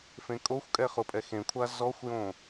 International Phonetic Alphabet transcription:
fẽkʼoxʷkʼɛ χʊpʼɛxẽkʷʰa zɔxʷjõ

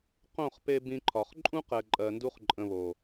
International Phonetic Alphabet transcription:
qõ˦˨χpe˧ bĩ˧ǃʰɒ˨χ ǃʼũ˦qɛ˨ǃʼɜ˨ndu˧χ ǃʼə̃˧βo˨

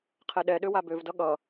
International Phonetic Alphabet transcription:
qʰɛɗɛɗø wabøvdʌ ɠʌ

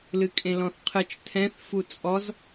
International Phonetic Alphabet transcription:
lɨkʼẽlɔ̃θqʰɨt͡ʃ tʰɛ̃θ fut͡sʼɔz

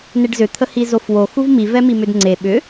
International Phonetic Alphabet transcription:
neɖzʏ t̪ʰəhizofwo xuvmi vɛmimʏdŋ͡ǀe ɓʏ

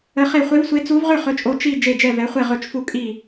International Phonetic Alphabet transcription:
ə˧˥χe˥˧ χʷe˧˥vsʷe˧˥ t͡su˧˥vʁʏ˥˧ χɵ˧˥t͡ʃʼo˧˥ t͡ʃi˥˧ d͡ʒe˥˧d͡ʒɛ˥˧vɛ˧˥χʷe˥˧ ʁɵ˥˧t͡ʃfu˥˧ kʼi˥˧

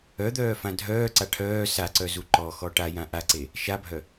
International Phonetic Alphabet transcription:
œd̪œːfã dʱœːǀa ʈʰœː saǀœzu ǃɔxɔ ʈajã ʔaǀe | ʃabʱœ

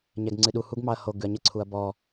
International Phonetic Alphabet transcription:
ɲɛɡŋ͡ǀɨɗu huɡmɑɐ̯ho ɡʉɐ̯ɲə ǀʰuɐ̯bɔ

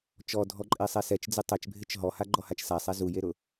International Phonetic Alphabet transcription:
t͡ʃɔdʱɔǃʼesˤɛ sɛt͡ʃd͡zɪ tˤɛt͡ʃbʱɪt͡ʃ ɦɔhaɡ͡ǃɔhat͡ʃ sasˤɛ zujeɾʊ

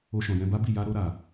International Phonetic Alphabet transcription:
o˧ʃɔ̃˨jɛ̃˧ ba˦bi˦˨ ja˧ɾo˧ɾa˨

